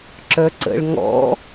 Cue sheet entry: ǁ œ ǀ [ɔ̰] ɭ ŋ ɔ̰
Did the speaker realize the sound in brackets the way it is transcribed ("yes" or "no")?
no